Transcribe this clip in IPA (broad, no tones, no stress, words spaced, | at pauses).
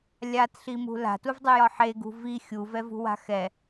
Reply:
lʲatɬimṳ la̤tuvdˤujɒ ħeɡṳ vi xʲuvɛvṳwa̤ xɛ